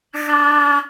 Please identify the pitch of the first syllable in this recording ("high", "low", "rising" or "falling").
high